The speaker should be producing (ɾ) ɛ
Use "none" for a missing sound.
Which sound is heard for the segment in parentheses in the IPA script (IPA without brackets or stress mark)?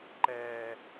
ǃ